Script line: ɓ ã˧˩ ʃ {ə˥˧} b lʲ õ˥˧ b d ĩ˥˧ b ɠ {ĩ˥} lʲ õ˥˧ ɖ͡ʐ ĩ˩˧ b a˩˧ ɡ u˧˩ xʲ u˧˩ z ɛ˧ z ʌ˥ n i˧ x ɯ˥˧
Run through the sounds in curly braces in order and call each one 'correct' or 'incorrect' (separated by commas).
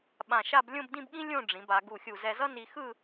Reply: incorrect, correct